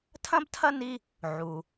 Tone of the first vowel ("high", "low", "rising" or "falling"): high